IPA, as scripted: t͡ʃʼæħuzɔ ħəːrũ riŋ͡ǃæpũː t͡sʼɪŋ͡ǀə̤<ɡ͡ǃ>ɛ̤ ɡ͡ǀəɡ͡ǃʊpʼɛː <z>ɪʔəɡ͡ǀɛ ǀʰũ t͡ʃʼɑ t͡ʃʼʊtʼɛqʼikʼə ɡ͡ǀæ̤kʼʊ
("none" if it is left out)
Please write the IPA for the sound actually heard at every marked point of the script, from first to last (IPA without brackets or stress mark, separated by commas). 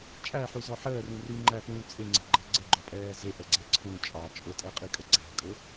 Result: ɡ͡ǃ, z